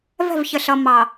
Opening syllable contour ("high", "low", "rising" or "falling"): falling